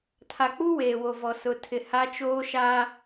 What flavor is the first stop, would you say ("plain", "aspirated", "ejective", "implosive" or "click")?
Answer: aspirated